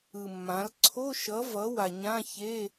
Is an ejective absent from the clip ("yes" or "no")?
yes